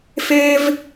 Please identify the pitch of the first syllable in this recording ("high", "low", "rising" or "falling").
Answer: high